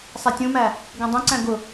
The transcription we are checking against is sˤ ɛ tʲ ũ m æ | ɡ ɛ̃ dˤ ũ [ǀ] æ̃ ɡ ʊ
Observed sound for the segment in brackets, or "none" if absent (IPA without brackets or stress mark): ǀ